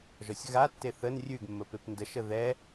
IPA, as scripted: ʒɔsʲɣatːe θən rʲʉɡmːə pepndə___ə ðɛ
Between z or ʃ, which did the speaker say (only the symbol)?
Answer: ʃ